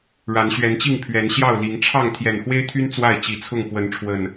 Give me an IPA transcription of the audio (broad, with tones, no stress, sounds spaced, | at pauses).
ɻ a˨˦ n ɕ ɥ ɛ˨˦ n t͡ɕ i˥˨ ŋ pʰ ɥ ɛ˨˦ n ɕ j ɑ˥˨ ʊ̯ l i˨˦ ŋ ʈ͡ʂʰ ɑ˥˨ ŋ t̪ʰ j ɛ˨˩ n x w e˦ ɪ̯ t̪ʰ y˦ n t͡s w a˥˨ ɪ̯ t͡ɕ i˨˩ t͡sʰ ʊ˥˨ ŋ p w ə˨˦ n ʈ͡ʂʰ w ə˨˩ n